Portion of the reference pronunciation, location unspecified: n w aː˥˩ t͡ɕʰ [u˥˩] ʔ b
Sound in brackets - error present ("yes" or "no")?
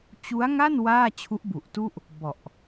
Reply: yes